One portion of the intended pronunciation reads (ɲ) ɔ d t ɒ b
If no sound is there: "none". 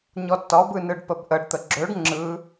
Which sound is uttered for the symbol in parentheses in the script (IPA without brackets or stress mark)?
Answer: ɲ